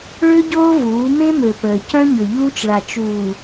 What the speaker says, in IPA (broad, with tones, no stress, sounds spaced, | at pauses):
ɭ ø˦ ɟ oː˦ v uː˨˦ m ẽ˦ m ø˨ p əː˨ c œ̃˦ ɲ ø˨ ʎ uː˦ t͡ʃ ɭ a˨ t͡ʃ uː˨